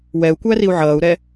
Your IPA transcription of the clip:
wɛu̯kʷæriu̯ ʕʌːu̯ɾɛ

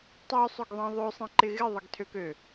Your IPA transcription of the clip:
tˤøsˤøɡðˤẽ ðˤøsˤẽǃɪ ɣɪðˤəɡtʰøkø

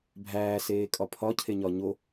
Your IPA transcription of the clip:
bʱæː seːkʼɒpʰɒ cʰeɲɒɲo

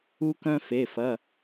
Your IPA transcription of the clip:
u˦kœ̃˦fe˩˧˩fɐ˩˧˩

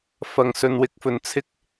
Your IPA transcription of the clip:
fɐ˨ŋ sɵ˨˧nwɪ˧k̚fɵ˨n t͡sʰɪ˥k̚

